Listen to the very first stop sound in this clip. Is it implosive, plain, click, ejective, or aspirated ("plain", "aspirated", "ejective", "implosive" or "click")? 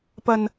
plain